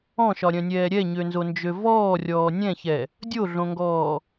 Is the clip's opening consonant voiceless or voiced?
voiceless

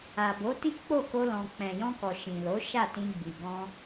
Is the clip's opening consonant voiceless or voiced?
voiced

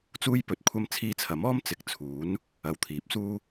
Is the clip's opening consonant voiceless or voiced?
voiceless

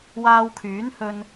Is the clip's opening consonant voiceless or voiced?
voiced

